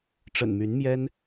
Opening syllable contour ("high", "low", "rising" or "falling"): low